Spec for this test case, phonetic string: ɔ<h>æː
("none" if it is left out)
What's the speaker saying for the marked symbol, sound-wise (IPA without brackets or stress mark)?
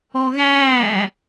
ɣ